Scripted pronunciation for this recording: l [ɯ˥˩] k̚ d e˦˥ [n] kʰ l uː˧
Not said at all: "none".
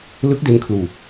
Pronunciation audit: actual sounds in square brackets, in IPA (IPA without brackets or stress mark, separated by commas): ɯ˦˥, n